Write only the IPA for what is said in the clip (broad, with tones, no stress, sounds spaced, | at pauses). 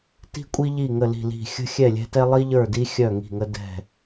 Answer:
t i̤˧ kʷʼ i˧ ʎ i˧˩ ŋ ə˧˩ l i̤˧˩ l i̤˧˩ xʲ ə̤˧ xʲ ɛ˧˩ lʲ ɛ̤˧ t ɛ˧ lˠ i˧ ʎ ə˞˧˩ d i˧ xʲ œ˧˩ ŋ i̤˧˩ ŋ ə˧ d ɛ̤˧˩